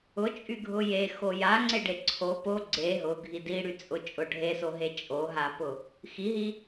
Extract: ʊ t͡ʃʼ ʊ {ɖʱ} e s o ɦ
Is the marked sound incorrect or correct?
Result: correct